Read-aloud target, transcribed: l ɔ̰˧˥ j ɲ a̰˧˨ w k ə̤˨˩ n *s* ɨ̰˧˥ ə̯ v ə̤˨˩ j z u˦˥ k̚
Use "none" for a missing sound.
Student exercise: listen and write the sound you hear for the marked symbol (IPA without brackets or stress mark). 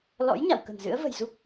z